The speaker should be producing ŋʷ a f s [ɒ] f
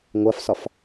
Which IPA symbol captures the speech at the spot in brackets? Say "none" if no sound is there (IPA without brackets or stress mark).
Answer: ɒ